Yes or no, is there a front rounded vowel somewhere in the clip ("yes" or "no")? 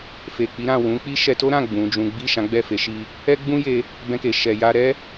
no